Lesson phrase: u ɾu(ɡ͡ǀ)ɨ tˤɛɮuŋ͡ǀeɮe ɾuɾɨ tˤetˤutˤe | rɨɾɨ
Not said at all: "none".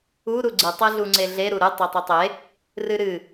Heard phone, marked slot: ɡ͡ǀ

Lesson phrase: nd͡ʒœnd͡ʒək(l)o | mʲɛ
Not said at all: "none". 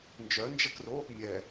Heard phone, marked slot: r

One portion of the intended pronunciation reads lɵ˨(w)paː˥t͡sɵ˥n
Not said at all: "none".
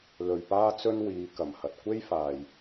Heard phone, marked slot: ɥ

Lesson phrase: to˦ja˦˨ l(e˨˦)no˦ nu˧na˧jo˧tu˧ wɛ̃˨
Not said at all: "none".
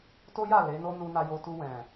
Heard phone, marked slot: e˨˦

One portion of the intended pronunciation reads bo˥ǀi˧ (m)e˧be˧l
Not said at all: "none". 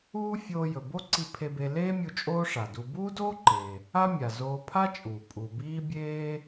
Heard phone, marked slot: pʰ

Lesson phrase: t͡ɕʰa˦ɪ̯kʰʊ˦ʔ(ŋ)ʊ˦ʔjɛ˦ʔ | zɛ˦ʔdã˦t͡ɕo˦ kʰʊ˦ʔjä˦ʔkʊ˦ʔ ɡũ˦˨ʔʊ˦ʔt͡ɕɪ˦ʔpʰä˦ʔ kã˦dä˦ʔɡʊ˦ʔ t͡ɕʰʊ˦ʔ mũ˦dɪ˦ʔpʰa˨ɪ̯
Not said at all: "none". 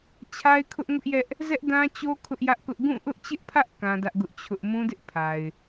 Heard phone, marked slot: ŋ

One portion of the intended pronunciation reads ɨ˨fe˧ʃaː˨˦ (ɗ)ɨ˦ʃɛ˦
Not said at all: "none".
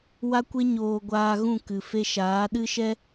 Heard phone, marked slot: ɗ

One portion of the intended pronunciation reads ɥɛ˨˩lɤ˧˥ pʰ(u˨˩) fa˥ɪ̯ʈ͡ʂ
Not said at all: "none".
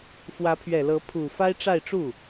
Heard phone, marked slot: u˨˩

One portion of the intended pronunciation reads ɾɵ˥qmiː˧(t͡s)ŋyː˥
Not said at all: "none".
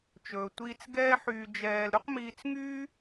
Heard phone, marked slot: t͡s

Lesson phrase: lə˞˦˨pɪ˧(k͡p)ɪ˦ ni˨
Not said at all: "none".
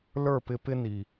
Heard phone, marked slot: p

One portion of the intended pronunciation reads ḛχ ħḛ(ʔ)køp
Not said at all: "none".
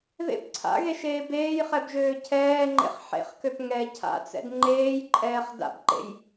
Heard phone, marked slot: χ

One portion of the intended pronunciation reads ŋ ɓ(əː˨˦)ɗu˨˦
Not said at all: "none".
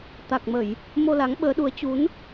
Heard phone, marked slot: əː˨˦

